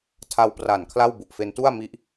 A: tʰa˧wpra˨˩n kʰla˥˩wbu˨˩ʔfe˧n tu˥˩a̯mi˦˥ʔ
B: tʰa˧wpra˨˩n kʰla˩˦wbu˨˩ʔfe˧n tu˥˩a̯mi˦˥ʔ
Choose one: A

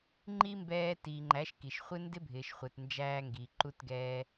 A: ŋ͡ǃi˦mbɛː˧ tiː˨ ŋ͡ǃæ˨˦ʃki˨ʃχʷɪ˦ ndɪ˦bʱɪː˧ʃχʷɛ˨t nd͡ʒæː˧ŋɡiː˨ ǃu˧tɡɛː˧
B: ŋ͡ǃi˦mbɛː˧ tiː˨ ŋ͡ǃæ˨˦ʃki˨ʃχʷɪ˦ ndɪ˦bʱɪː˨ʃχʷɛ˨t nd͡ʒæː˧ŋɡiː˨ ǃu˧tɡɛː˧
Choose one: B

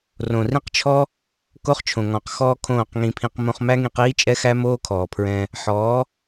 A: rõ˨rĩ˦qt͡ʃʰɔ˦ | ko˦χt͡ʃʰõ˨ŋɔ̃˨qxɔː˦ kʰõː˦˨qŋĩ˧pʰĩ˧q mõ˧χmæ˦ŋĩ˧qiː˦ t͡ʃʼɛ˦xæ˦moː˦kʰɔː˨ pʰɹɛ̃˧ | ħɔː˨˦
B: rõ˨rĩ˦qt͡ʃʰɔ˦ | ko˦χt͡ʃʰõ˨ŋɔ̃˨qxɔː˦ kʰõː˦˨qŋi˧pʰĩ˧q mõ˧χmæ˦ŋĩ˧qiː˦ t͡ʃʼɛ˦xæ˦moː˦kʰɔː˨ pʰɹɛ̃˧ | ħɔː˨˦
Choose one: A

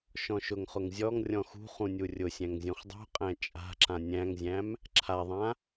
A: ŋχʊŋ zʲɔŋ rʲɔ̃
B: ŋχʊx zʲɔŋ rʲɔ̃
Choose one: A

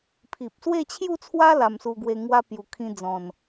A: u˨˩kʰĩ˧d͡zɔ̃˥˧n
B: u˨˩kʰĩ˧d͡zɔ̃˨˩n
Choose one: B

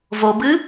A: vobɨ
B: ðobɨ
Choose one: A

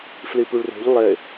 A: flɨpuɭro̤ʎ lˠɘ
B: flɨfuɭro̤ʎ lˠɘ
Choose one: A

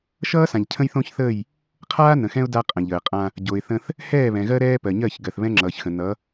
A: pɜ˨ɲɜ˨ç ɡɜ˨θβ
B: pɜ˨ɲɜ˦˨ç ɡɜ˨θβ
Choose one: B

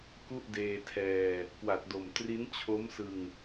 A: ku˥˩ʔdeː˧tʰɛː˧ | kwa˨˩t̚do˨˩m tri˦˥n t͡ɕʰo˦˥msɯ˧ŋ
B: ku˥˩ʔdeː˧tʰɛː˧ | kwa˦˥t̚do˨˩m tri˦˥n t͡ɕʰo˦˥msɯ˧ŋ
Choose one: A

